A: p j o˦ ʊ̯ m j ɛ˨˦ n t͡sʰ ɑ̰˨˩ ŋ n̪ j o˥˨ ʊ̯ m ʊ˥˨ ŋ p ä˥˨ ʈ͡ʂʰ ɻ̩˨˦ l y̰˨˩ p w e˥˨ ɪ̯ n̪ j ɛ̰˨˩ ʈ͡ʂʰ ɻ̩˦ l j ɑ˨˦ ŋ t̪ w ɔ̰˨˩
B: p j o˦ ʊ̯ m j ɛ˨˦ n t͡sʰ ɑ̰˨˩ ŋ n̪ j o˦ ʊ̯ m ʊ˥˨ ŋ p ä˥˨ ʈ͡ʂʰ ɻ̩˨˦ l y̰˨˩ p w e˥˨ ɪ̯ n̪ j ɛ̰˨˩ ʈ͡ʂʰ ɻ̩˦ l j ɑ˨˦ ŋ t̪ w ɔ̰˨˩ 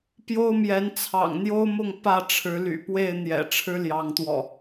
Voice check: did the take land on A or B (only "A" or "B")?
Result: B